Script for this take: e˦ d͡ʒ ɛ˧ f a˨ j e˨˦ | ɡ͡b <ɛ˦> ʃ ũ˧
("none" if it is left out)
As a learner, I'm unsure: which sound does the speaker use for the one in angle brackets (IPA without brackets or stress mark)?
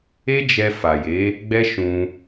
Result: ɛ˦